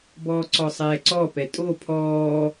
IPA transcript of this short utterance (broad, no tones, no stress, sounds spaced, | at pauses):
b ɔː ǀ ɔ sˤ ɛː ǀ ɔ p ɛ tʼ o pʰ ɔː